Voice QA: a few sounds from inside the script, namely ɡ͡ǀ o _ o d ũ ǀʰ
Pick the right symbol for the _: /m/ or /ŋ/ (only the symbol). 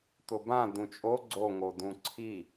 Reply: ŋ